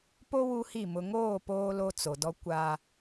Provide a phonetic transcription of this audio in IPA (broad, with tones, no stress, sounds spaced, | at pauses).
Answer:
p o˦ w u˦ h i˦˨ m ʊ˨ ŋ oː˦˨ p oː˦ l o˦ t͡s o˨ d ɔ˦ kʷ a˦